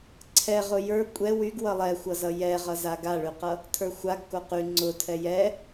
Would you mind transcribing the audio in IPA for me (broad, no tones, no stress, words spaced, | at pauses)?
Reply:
ǀʰɛʁʊ jə˞ kʷʼɛ wyɡ wʌlˠɛxʷʌzʌ jɛʁʌza ɡaɭyqʌ | tʰə˞xʷaɡ koqy ŋ͡ǀʊtʰɛ jɛ